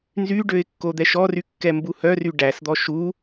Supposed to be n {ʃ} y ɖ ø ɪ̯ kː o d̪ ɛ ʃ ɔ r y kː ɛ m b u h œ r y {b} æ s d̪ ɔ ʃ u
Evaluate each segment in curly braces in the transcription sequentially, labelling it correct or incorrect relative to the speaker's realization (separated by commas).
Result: incorrect, incorrect